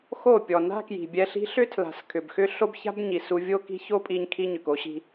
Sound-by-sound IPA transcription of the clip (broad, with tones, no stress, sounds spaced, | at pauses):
x o˦˨ pʲ ɔ˨ n a̤˦ k j i̤˨ bʲ ɛ˧ ɬ i̤˦ ɬ ʏ˦ tʰ l a̤˨ s kʰ ʏ˨ b x ʏ˦ ɬ o˦ b ç a̤˦ b ɲ i˨ s u˧ vʲ o˦ k i̤˦ ç o˦ pʼ i˧ ɲ kʰ i˦ ɲ ʏ˨ k o˦ ɕ i̤˧